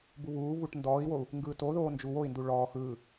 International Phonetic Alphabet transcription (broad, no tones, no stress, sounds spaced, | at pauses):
b u β uː v u ʈ n d ɔː i̯ w o u̯ | ŋ ɡ ɯː t o ð oː n d͡ʒ u w o i̯ n d u ɭ ɔː x ɯː